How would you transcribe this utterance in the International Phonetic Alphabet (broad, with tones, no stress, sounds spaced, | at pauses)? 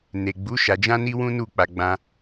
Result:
n e˨ ɡ͡b u˨˦ ʃ a˧ d͡ʒ ã˦ n i˦ w ũ˦ n u˦˨ k͡p a˧ ɡ͡b ã˧